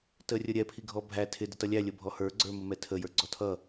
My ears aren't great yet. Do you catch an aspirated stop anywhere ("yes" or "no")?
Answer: yes